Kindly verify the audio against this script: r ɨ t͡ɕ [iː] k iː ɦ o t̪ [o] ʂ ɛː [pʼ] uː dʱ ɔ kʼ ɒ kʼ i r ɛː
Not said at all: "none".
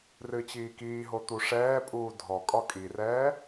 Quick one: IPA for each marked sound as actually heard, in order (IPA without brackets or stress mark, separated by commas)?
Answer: iː, u, pʼ